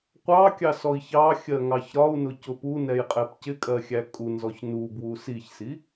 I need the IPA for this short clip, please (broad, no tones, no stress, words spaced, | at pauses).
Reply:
qʷɑkʲɑsɔi̯ çɑxʲɜŋɑç ɾɒu̯nʊcʊ punɛjqʼɛp cɪkʼɜxʲæ kʼunzɔç nubwu siçsi